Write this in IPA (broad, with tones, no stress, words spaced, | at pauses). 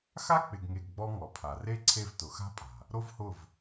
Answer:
xa˦k͡pɪ˨ɡŋe˨ɡ ɡ͡bɔ˦ŋɔ˨pʰa˨ re˦ ǀʰe˦˨vtʊ˨xa̤˦pʼa̤˨ | ɾo˦vhʊ˦˨v